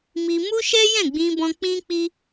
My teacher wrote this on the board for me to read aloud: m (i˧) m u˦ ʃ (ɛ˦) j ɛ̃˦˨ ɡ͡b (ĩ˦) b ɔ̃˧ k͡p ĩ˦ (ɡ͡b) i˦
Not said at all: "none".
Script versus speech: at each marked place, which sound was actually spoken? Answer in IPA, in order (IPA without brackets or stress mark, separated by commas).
i˧, ɛ˦, ĩ˧, k͡p